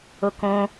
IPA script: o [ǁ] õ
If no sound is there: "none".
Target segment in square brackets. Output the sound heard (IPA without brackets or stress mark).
k